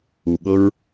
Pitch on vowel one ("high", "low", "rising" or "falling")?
low